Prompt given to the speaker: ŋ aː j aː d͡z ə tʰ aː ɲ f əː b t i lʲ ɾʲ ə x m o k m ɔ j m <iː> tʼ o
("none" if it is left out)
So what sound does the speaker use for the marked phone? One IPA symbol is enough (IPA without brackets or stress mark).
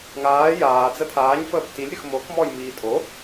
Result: iː